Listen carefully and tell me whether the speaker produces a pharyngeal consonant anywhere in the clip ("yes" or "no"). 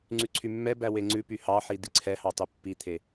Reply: yes